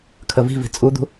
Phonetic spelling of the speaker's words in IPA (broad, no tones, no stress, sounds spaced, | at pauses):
kʰ ə v i̤ v i̤ t͡sʼ u d̪ ṳ